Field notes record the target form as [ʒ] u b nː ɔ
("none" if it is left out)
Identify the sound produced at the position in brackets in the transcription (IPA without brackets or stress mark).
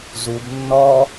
z